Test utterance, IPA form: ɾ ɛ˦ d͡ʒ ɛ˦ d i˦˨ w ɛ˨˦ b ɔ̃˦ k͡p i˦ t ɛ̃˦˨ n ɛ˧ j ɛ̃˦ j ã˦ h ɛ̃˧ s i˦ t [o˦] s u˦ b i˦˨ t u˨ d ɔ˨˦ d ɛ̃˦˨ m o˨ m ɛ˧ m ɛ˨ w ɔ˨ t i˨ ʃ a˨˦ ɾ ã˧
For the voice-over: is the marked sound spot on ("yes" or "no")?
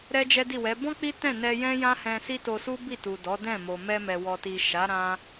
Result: no